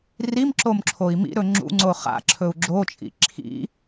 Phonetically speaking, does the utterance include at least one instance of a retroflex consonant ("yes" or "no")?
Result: no